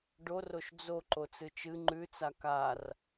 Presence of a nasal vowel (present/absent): absent